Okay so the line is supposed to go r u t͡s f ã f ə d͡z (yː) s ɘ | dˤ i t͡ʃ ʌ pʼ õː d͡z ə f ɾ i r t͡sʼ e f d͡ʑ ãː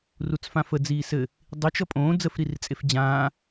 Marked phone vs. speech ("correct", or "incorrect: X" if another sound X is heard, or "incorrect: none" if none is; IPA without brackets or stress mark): incorrect: iː